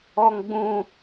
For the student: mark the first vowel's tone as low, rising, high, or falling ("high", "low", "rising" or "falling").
low